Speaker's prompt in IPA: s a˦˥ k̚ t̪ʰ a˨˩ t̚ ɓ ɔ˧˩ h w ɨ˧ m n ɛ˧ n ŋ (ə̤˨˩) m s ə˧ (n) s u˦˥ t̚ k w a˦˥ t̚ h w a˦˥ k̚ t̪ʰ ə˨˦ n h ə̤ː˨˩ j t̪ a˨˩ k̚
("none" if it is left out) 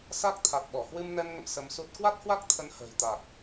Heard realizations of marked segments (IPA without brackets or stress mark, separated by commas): ə̰˧˨, m